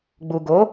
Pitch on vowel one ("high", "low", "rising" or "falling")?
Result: low